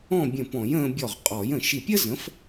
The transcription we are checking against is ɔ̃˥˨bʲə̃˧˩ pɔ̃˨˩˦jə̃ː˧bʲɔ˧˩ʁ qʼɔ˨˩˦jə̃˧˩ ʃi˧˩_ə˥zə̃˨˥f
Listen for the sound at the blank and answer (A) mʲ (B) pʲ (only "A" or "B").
B